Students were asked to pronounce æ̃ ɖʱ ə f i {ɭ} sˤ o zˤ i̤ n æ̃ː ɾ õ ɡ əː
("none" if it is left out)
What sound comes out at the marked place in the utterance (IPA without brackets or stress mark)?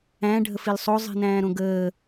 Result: l